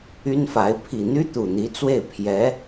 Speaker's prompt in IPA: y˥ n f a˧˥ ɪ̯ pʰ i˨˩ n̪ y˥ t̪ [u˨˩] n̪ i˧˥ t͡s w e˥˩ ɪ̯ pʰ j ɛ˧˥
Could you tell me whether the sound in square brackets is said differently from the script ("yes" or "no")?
no